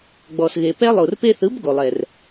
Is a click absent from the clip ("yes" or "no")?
yes